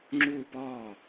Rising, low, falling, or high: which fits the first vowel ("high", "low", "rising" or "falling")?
falling